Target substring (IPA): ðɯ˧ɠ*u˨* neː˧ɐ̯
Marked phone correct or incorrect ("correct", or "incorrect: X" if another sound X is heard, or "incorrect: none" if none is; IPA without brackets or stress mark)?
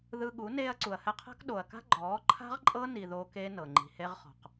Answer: incorrect: u˨˦